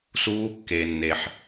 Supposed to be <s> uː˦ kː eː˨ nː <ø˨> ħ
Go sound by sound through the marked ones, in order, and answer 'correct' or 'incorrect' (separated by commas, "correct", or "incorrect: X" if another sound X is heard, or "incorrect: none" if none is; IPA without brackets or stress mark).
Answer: correct, incorrect: e˨